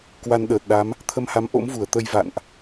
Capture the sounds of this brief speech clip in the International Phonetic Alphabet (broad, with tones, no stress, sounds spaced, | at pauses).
k w a˧ n ɗ əː˨˩ t̚ ɗ a˨˦ m | t̪ʰ ə˧ m h a˨˦ m ʔ o̰˧˥ m v u˧˩ ə̯ t̪ ə˧ j v a̰˧˨ n ʔ